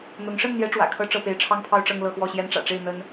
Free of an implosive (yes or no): yes